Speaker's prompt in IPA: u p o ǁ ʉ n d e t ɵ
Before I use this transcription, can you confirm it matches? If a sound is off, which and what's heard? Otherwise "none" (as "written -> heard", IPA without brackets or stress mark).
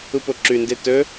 none